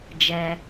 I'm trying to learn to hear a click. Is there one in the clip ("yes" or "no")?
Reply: no